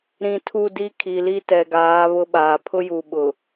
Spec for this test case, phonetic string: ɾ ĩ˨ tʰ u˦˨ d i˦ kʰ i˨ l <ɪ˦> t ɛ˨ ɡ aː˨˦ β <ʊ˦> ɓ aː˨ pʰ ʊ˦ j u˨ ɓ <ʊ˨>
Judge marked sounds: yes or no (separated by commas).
no, yes, yes